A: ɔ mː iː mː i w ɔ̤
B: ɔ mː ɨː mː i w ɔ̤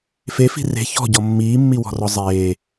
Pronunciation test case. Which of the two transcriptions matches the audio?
A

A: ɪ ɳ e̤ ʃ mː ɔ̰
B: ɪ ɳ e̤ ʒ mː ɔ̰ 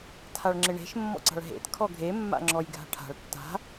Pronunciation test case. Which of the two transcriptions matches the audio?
A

